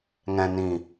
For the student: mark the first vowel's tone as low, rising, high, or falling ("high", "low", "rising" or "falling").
low